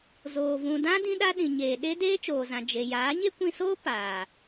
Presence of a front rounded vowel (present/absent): absent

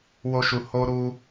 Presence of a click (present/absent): absent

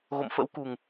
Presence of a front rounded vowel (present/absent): absent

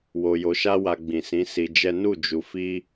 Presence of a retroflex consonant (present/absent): absent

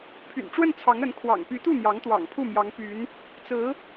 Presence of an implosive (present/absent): absent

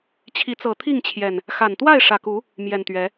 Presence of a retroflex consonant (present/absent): present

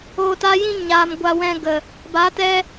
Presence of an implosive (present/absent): absent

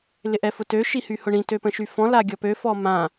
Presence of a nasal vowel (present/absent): present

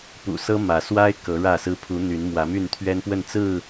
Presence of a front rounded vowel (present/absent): present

